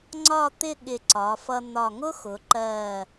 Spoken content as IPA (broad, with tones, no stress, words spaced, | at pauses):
ŋ͡ǀɒ˥˧t̪ɪ˥˧ ɠɪ˧˩ǀɒ˩˧fʌ˧ n̪ɒ˧˩ŋʊ˥xʊ˩˧ǃɜ˧˩